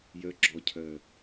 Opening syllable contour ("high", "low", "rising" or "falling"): low